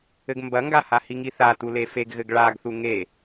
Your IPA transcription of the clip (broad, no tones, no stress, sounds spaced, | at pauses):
ɘ ɡ m b ɐ ŋ ɡ a h a h i ŋ i θ a t u l e f e ɡ ɣ ɘ ɡ ɭ a ɡ θ u ŋ e